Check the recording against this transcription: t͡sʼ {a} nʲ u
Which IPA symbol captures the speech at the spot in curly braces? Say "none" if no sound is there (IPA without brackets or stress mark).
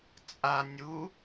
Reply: a